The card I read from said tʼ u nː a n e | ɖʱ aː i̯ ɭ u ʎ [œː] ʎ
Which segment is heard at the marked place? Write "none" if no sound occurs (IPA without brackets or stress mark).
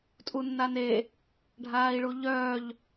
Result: œː